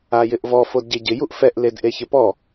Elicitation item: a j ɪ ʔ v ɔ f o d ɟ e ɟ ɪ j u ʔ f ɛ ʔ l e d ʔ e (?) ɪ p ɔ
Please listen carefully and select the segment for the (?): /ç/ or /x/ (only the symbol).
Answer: ç